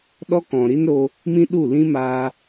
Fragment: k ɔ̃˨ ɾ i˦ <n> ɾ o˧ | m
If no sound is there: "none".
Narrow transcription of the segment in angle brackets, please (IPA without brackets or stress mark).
n